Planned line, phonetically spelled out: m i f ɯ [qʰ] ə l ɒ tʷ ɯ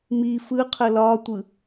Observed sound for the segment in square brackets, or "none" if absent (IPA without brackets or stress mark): qʰ